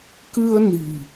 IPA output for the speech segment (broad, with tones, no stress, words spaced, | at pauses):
kɨ˧ə̯ ni̤˨˩